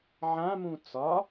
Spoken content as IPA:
ʕ ã m ũ t͡s ɒ

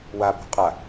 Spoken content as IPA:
w a b ṳ qʼ a

